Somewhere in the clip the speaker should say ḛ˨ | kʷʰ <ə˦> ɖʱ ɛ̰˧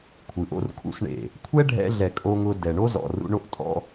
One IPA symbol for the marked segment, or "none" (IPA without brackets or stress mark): ɛ˦